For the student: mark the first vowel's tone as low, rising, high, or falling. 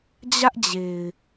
high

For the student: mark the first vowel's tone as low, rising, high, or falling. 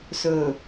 low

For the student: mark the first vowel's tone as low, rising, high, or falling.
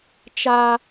high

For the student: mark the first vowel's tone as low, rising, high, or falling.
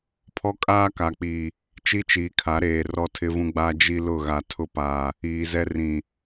high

